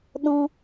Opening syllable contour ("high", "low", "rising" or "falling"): high